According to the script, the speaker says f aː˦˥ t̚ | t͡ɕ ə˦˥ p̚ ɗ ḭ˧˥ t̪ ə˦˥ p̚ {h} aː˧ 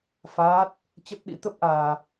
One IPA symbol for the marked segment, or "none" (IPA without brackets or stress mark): ʔ